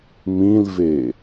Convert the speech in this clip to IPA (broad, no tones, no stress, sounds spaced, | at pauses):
m ĩ l v e